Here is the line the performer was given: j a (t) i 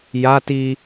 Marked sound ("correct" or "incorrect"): correct